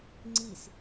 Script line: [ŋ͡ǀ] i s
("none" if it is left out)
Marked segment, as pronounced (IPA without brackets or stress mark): ŋ͡ǀ